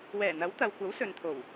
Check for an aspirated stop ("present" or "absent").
present